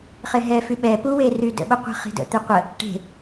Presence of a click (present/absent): absent